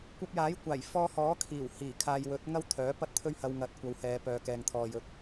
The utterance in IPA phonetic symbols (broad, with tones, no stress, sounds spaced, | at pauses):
kʷ ɐ˧ p̚ j aː˨˥ j kʷ aː˨˩ j f ɔː˧ h ɔː˨˥ kʰ iː˨˩ w h iː˨˩ kʰ aː˨ j w ɵ˨˥ t̚ ŋ ɐ˥ w t̪ʰ œː˨˥ p ɐ˥ t̚ t̪ʰ ɵ˥ ɥ h ɐ˧ w ŋ ɐ˨˥ t̚ kʷ ɐ˨˧ w h ɛː˨˧ p œː˨˧ k ɛː˨ ŋ t̪ʰ ɔː˨ j ɵ˨˥ t̚